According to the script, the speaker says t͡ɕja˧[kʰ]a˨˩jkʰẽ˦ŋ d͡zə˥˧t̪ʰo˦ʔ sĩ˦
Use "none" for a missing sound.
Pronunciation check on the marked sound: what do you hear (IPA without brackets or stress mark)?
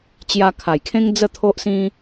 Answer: kʰ